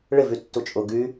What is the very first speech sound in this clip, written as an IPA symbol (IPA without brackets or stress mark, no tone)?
ɭ